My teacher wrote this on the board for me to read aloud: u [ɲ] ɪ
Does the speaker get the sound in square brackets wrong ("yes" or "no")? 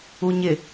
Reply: no